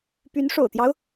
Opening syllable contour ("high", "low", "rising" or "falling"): rising